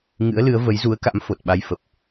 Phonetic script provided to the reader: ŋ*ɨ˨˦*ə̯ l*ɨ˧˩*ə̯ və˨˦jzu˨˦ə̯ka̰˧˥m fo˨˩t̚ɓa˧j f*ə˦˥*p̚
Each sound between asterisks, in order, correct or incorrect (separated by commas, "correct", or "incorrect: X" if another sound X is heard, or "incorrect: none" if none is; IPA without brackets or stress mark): incorrect: ɨ̰˧˥, incorrect: ɨ˨˦, incorrect: ə˨˩